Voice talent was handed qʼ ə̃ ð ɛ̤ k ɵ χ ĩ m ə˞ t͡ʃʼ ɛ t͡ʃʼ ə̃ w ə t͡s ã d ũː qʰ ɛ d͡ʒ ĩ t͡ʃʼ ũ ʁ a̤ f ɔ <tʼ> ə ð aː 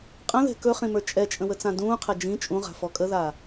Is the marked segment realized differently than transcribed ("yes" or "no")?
yes